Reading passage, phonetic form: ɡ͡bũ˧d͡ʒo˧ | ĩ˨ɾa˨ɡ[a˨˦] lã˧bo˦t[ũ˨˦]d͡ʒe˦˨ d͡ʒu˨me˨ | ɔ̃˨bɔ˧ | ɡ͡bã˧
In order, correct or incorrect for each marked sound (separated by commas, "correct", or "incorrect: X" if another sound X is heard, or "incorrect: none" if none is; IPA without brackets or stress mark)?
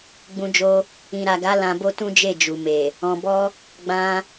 correct, incorrect: ũ˦